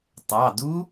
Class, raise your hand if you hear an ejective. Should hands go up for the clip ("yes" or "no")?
no